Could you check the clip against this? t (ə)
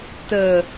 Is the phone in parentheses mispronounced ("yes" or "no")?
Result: no